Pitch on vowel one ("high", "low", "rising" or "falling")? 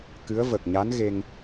rising